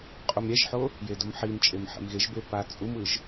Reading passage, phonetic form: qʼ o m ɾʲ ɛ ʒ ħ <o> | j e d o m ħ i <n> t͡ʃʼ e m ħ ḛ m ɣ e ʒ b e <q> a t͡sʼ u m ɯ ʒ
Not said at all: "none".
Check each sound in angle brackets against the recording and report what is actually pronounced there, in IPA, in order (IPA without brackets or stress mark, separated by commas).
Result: o, n, p